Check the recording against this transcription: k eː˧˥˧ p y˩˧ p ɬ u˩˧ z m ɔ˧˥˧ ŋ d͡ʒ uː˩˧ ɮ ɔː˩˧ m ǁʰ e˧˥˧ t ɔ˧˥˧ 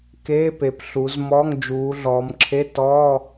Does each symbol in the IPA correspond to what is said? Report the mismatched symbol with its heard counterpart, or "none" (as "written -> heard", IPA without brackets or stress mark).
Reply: y˩˧ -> e˩˧